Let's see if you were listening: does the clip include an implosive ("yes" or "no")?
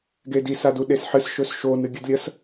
yes